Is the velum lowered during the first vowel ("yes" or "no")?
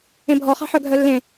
yes